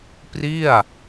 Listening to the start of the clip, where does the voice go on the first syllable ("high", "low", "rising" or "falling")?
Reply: falling